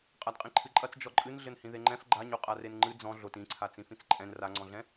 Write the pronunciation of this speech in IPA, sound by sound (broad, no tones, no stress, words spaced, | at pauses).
qʼadqʼĩǃʰɨǃʼɐt͡s d͡ʒɔǃʼɨn ɮɘnhĩðeŋ͡ǃɛ̃f ɡ͡ǃaɲoqʼa renŋ͡ǃɨ d͡zɔ̃ ɮot ĩǀʰa t͡sĩfĩt͡sǃʼɛ̃n raŋ͡ǀɔ̃ɮɛ̃